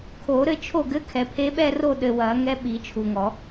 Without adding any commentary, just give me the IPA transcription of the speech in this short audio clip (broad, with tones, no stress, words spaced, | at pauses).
kʰo˨˩˦ɾɘ˥˩t͡ʃʰo˥˩ɡɘ˧˥˧ kʰɛ˨pʰe˧˥ɓɛ˥˧ ro˥˩ɗɘ˨ wɐ˨˩˦ŋɛ˧˥ɓi˨˩˦ t͡ʃʰu˨ŋɔ˨˩˦